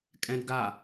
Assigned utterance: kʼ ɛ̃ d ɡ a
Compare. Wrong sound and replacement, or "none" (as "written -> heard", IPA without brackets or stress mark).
none